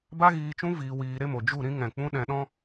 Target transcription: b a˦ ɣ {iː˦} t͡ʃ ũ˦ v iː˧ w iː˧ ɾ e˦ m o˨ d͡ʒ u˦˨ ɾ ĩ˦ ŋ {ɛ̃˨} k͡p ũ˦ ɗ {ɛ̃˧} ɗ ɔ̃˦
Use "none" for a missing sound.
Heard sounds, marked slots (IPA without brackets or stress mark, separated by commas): iː˧, ɛ̃˨, ɛ̃˧